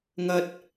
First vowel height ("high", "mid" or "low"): low